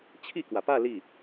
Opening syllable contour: falling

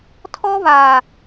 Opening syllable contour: high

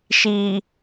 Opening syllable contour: low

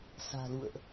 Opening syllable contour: low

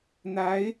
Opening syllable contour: rising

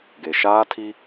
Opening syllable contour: low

